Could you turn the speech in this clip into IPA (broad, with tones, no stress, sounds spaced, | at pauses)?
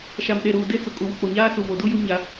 ʃ a˨ m ɗ e˨ ɾ uː˨ d e˦ t͡s ʊ˨ kʼ u˨ w ʊ˨ k͡p o˨ ɲ aː˦ s u˨ v o˨ d u˦ j u˦ ɲ a˦